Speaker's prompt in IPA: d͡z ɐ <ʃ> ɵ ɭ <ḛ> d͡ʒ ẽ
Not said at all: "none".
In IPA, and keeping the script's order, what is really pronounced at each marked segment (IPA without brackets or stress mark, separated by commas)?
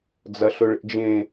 ɬ, ḛ